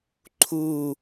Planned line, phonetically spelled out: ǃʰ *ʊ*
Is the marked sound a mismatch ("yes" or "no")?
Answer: yes